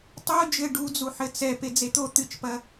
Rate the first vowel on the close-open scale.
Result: mid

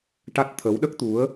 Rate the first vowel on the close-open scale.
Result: open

